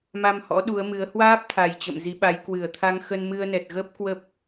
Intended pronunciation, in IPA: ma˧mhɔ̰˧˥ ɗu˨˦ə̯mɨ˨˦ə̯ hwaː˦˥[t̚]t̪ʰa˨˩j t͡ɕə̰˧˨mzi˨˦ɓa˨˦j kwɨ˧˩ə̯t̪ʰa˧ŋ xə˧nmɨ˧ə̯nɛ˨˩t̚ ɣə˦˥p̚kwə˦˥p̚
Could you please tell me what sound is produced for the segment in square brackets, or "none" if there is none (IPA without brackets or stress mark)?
p̚